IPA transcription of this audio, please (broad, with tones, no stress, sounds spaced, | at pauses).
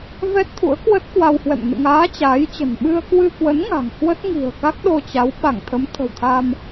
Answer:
v ɛ˦˥ t̚ t̪ʰ ṵ˧˥ ə̯ k w ə˦˥ t̚ k w a˧ w h w ɛ̰˧˨ m n ɨ̰˧˨ ŋ aː˨˦ t͡ɕ aː˨˦ j t͡ɕ ə̤˨˩ n ɓ ɨ˧ ə̯ k w ɨ˧ k w ə˨˦ n ŋ a̤˨˩ ŋ h w ə˦˥ t̚ ŋ i̤˨˩ ə̯ k a˦˥ k̚ ɗ o˧ t͡ɕ a˨˦ w ɓ a˧˩ ŋ t̪ʰ ə˨˦ m t̪ʰ ə̤˨˩ w t̪ʰ a˧ m